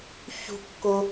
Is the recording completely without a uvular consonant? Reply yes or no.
yes